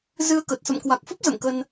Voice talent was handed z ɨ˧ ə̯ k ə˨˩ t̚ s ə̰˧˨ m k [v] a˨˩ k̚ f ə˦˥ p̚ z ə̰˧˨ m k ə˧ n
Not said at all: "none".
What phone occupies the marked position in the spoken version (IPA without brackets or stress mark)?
w